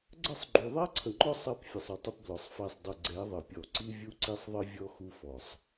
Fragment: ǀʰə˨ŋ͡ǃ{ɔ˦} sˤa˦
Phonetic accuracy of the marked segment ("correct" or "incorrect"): correct